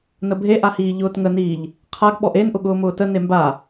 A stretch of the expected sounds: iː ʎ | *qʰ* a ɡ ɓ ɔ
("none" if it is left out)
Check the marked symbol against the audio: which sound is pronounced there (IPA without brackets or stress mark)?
qʰ